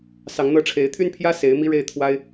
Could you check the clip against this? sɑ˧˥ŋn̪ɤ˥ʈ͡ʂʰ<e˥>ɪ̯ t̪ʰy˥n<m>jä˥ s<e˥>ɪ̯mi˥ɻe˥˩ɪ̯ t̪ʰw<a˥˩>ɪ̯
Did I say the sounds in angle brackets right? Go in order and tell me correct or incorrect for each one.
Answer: incorrect, incorrect, incorrect, incorrect

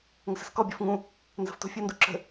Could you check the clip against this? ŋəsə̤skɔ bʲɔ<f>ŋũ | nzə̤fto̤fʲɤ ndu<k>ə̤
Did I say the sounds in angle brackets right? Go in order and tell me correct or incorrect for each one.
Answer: correct, incorrect

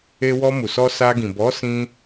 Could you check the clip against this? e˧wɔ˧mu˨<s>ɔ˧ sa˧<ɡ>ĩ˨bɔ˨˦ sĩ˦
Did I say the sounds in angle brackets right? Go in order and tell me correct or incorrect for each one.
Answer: correct, correct

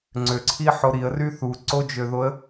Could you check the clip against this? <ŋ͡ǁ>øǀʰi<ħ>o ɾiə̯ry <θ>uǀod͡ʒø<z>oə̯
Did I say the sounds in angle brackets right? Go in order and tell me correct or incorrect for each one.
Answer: incorrect, correct, correct, incorrect

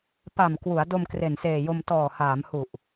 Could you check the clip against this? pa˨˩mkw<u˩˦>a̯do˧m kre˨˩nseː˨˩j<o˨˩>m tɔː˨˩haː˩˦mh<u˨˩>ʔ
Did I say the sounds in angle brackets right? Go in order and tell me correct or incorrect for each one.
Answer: correct, incorrect, correct

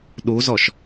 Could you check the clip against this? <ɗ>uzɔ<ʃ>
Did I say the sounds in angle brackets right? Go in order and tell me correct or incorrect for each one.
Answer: correct, correct

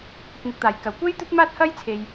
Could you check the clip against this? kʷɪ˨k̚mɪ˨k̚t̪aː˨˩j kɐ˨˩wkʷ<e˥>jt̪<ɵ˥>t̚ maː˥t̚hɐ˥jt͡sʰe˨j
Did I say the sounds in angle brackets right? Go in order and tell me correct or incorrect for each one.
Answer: correct, correct

